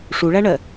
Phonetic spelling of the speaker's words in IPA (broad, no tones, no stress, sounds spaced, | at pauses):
ʂ u ɭ æ ɳ ɜ